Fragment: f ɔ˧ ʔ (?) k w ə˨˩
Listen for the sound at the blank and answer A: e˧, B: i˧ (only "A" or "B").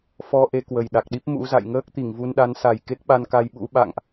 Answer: A